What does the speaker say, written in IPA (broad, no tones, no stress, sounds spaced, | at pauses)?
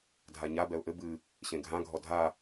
dʱ a ɲ a b ɛ ʊ̯ ʔ ɘ b ɨ | ɕ ẽ ɡʱ ã ɡʱ ɔ dʱ a